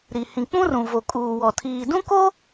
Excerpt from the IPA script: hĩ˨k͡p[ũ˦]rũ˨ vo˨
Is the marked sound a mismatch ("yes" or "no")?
no